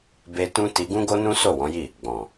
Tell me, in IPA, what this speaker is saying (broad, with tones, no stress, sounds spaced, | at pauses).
b e˦ t ũ˦ t i˧ ɡ ũ˦ ɡ o˦ n ũ˦ s o˦˨ w ɔ̃˨˦ j i˦˨ | ɡ͡b ɔ̃˨